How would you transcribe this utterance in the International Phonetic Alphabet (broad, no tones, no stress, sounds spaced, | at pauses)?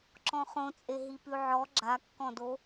ǁ ɔ̃ χ õ t͡sʼ e ɦ i p ʉ ʕ ɔ ɡ͡ǁ a kː ɔ̃ d o